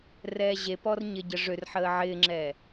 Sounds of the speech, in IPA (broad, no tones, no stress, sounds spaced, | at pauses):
r ɛː ʑ e p ɔ r ɲ ɪ ɟ ə ʐ ø r ħ əː ʕ ɪː ŋ͡ǁ ɛː